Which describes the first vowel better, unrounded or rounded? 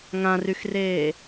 unrounded